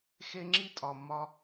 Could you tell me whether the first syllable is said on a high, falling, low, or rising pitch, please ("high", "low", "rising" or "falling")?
high